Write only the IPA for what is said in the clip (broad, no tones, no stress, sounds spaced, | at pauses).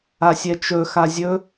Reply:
a sʲ ɛ t͡ʃ ɵ x a zʲ ɵ